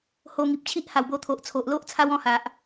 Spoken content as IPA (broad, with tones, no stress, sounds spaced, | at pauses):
h o˧ ŋ i˨ p̚ t͡ɕʰ i˦ ʔ h a˨˩ w b o˧ t̪ʰ o˨ ʔ t͡sʰ o˨ ʔ l o˦ ʔ t͡sʰ a˦ w ɔ̃˥˧ h a˨ ʔ